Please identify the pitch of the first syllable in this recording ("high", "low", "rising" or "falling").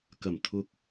low